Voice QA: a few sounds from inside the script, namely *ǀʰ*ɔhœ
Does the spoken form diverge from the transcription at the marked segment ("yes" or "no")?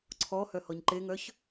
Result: no